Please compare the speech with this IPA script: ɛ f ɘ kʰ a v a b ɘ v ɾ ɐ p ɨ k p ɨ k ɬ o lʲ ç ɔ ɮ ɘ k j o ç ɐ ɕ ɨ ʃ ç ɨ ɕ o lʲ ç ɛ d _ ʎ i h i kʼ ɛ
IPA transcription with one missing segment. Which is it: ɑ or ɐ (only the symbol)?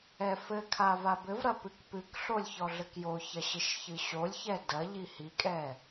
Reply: ɐ